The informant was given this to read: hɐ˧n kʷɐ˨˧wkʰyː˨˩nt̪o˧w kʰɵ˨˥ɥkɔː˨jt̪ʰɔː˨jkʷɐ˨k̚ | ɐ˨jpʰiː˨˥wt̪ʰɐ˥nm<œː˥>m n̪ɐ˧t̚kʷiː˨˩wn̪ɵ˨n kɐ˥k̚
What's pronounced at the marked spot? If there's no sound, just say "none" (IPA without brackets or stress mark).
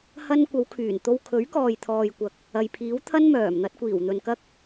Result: œː˨˩